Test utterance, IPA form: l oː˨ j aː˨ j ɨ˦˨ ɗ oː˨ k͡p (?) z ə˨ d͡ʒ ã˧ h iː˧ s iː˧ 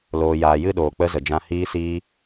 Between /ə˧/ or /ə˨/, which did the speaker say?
ə˧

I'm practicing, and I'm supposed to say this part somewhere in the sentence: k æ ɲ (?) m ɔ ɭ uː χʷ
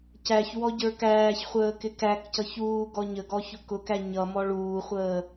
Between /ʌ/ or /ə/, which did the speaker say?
ʌ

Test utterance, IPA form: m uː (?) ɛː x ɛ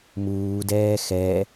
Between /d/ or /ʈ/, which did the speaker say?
d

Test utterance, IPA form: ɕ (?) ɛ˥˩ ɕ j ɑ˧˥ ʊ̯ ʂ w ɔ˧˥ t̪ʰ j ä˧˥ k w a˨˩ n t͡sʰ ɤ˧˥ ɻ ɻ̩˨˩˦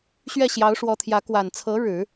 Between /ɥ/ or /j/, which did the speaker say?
ɥ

